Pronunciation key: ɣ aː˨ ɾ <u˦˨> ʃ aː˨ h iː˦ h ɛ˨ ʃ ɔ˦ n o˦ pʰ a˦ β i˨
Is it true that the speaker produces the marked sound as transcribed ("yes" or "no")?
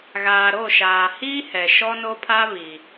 no